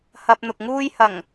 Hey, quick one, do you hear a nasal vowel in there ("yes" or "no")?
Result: no